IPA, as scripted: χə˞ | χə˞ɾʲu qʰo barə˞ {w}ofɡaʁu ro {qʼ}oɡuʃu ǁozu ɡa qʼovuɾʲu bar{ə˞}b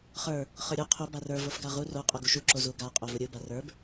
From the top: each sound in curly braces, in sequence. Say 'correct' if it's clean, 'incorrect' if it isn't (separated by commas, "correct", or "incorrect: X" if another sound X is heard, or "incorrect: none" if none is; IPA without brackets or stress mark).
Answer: incorrect: v, correct, correct